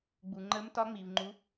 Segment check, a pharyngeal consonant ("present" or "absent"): absent